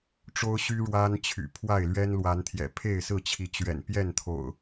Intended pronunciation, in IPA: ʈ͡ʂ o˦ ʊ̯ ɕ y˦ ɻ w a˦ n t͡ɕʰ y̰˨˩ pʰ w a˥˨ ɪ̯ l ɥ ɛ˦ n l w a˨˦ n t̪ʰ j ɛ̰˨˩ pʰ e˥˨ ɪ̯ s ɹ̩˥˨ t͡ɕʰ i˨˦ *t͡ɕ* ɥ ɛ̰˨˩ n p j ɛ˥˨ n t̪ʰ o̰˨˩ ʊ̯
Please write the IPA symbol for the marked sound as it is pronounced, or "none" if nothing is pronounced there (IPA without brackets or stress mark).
t͡ɕ